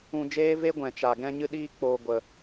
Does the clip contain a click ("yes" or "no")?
no